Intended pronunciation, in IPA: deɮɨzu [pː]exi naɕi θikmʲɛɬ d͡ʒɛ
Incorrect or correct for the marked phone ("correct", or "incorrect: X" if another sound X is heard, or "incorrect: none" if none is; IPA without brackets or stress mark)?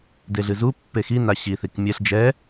correct